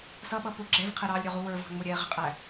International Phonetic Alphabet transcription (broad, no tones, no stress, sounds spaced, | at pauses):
s ʌ ɓ ʌ p ʊ ɡ͡ǁ ɛ v qʰ ɛ ɾ ɑ lʲ ɾʲ ɔ ʁ u w ə˞ v ɑ̤ ŋ͡m ʊ ɾʲ ɛ ʁ ɪ qʼ æ